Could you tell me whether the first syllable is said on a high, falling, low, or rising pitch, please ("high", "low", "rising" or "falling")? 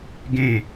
falling